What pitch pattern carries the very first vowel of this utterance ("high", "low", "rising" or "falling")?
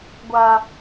high